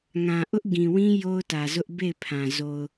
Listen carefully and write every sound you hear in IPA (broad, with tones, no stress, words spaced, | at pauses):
ŋã˨ʔʊ˦ʔɡĩ˨wĩ˦ jo˦ʊ̯tä˨zʊ˦ʔ be˦˨ɪ̯pʰã˨ zo˨ʊ̯